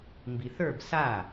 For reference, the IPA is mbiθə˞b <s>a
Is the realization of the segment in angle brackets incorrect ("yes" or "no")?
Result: no